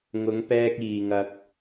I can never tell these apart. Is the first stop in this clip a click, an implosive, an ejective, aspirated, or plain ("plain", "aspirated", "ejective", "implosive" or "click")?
plain